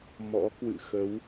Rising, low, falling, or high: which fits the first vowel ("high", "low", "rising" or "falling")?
rising